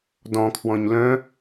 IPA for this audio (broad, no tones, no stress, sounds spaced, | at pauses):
d ɔ̃ kʰ w ɔ̃ ɲ l œ̃